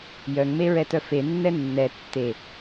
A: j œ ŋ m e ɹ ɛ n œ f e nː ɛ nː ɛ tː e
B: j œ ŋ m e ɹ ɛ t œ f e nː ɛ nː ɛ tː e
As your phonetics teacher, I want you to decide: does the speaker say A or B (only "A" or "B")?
B